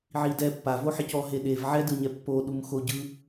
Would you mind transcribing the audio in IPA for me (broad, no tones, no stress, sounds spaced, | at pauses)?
ʕ i d ɛ pː a v o ħ i c ɔ ɦ e ɗ e v ʕ ɛ d ɯ ɲ ɛ pː o ɗ u m x o ɟ ɯ